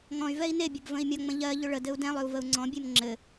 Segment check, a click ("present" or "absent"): present